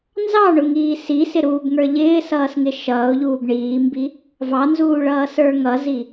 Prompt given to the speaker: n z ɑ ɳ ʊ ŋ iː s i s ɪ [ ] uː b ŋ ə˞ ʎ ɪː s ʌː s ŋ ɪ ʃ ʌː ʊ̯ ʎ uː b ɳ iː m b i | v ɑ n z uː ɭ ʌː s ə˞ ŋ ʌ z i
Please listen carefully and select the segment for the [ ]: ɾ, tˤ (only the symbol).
ɾ